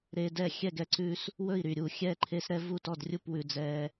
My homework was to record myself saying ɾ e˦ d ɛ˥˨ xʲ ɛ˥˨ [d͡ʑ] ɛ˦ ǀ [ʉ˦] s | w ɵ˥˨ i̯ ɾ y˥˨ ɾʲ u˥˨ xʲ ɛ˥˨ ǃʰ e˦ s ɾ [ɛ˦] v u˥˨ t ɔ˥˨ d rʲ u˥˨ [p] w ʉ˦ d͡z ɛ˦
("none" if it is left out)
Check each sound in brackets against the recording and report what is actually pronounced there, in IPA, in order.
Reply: ɡ, ʉ˦, ɛ˦, p

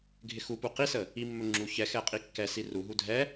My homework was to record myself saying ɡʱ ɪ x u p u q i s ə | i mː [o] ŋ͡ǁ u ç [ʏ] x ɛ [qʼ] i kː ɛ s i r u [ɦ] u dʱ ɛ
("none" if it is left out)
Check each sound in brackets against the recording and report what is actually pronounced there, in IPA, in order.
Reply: ɵ, ɛ, qʼ, ɦ

